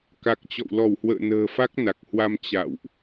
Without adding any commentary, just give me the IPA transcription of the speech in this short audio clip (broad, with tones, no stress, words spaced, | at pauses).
ka˨˩k̚t͡ɕɔ̰˧˨w lɔ˧˩whwə̰ː˧˨ nə̤ː˨˩fa˦˥k̚ na˨˩k̚hwa˧m t͡ɕa̰˧˨wʔ